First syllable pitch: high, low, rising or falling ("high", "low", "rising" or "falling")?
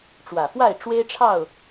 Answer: low